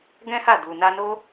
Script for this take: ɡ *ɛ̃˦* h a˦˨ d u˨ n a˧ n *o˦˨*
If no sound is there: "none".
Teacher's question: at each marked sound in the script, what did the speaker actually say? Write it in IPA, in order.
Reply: ɛ̃˦, o˦

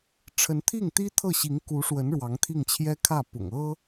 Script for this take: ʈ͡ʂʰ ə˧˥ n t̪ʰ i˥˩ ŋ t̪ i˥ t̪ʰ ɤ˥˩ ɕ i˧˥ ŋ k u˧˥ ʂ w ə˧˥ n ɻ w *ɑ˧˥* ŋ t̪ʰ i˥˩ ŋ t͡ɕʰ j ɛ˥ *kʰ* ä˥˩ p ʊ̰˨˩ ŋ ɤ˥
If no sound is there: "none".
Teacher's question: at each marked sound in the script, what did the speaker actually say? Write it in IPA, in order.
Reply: ɑ˧˥, kʰ

